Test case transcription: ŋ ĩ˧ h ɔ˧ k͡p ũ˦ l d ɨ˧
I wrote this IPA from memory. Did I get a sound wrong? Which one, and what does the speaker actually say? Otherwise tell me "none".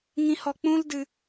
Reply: none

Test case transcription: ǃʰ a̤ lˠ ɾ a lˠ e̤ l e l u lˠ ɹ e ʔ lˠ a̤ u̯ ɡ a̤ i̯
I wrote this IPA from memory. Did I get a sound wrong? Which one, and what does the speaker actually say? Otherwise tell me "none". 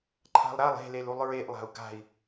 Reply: none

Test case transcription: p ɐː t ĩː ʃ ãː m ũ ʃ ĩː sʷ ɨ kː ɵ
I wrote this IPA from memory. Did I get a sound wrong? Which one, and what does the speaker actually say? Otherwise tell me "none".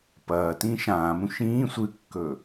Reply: none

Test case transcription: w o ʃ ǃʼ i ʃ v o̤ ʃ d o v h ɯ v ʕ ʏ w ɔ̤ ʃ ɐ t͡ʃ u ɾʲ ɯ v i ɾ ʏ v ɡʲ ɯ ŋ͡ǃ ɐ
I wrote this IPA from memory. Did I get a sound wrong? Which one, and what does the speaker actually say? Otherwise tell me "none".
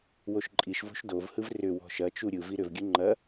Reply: ʕ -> r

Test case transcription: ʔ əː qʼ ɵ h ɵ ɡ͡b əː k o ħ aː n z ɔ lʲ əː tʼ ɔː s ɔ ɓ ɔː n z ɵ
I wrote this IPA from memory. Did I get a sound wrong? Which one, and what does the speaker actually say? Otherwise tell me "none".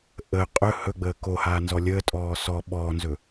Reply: ħ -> h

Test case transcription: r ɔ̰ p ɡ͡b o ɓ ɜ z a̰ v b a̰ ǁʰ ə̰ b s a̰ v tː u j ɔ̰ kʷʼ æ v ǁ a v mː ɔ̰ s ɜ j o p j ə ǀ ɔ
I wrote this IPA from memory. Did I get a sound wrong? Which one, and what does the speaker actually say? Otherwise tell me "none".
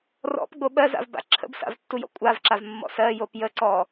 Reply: æ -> a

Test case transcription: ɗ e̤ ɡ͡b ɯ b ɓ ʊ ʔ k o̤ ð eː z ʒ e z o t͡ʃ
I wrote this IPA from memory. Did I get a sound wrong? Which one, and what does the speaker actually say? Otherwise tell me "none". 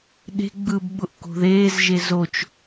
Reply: none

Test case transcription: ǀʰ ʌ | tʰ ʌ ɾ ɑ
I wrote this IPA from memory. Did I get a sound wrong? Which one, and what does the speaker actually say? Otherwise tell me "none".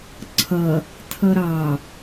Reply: none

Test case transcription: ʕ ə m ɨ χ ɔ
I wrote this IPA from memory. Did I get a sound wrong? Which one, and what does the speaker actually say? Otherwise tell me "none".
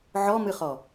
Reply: ə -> ɔ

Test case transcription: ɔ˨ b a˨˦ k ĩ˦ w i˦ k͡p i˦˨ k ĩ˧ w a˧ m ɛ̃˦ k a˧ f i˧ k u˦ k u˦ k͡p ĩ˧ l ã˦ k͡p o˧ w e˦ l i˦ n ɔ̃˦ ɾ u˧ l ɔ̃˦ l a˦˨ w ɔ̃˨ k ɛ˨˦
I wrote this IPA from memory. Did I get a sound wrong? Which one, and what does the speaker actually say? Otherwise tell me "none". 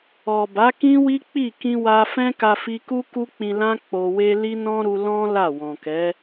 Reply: m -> f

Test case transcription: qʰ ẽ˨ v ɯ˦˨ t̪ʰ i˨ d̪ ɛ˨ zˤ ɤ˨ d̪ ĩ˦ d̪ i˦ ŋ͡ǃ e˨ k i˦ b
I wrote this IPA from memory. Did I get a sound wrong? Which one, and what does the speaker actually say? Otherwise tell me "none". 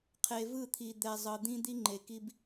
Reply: ẽ˨ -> e˨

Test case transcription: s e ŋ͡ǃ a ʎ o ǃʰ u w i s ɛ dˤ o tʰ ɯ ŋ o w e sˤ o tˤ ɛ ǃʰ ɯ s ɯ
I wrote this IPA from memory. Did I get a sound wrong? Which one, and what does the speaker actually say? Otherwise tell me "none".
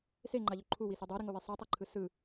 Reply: tʰ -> ɾ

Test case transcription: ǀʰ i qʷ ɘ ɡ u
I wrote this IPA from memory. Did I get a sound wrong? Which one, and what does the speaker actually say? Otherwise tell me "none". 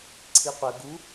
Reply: none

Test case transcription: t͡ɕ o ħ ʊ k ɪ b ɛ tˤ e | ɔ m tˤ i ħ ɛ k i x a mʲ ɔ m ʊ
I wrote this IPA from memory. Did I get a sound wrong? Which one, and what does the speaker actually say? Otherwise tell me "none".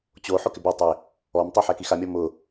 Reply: none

